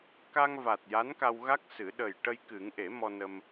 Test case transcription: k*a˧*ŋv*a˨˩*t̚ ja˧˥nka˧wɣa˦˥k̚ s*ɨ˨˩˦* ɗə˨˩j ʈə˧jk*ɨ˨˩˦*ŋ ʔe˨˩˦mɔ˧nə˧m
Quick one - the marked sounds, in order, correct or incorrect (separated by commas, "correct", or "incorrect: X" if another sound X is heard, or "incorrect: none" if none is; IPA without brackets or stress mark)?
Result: correct, correct, correct, correct